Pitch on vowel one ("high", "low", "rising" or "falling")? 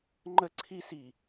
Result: high